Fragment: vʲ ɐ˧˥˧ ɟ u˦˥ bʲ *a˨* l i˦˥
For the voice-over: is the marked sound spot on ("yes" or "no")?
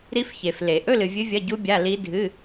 no